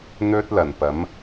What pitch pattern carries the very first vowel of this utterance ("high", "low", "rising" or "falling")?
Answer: high